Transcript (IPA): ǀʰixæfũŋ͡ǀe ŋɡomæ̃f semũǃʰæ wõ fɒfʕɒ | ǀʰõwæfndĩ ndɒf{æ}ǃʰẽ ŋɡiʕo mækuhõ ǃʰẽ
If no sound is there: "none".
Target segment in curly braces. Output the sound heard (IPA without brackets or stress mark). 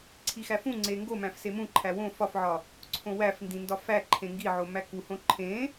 æ